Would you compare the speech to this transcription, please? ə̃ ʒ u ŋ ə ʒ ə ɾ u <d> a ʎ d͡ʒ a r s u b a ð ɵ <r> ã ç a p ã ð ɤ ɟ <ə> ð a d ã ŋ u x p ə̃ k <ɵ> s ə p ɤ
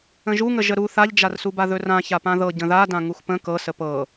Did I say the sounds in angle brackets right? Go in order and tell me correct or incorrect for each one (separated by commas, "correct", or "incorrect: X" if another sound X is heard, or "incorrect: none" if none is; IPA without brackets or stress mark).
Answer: incorrect: θ, correct, incorrect: ə̃, incorrect: ɤ